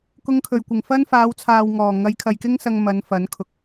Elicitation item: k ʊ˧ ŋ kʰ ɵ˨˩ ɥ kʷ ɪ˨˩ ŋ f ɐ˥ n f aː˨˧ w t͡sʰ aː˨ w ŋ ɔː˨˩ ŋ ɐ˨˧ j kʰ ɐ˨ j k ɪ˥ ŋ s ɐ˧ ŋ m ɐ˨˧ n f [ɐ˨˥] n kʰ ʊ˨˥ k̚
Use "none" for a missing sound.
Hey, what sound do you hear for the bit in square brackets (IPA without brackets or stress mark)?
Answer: ɐ˨˥